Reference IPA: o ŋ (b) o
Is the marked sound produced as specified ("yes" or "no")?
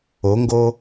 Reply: no